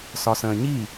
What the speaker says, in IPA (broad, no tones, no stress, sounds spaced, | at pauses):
s ɒ s ə̃ː ɲ i